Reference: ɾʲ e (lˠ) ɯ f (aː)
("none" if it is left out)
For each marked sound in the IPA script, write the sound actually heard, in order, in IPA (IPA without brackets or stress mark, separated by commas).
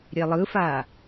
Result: lˠ, aː